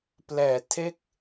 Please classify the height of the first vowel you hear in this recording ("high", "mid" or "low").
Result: mid